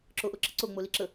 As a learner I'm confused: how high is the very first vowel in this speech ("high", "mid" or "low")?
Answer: mid